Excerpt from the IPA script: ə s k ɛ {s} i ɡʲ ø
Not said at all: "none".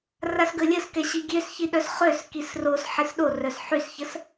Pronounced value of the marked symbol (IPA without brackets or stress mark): ɕ